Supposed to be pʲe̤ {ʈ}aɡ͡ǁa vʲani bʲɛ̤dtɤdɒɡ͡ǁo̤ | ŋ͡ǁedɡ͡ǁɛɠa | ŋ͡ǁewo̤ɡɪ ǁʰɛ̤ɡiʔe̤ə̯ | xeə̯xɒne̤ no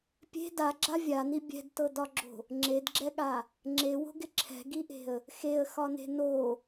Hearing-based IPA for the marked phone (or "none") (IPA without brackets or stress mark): d